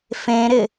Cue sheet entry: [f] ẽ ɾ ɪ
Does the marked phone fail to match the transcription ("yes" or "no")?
no